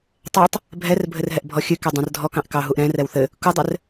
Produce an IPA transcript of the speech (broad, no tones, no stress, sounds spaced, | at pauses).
tˤ ɛ tˤ | bʱ ɛ r bʱ ɘ r ɦ ɛ ʔ bʱ ɔ xʲ ɨ k ɛ dˤ ɛ̃ r dʱ ɔ k ɑ̃ ʔ k ɑ ɦ u ʔ ɾ ɛ̃ r ɛ w θ ɘ | k u dˤ ɘ r